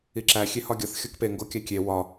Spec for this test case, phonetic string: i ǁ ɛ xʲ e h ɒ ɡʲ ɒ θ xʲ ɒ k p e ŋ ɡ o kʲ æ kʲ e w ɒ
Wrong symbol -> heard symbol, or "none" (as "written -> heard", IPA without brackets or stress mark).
ɛ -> æ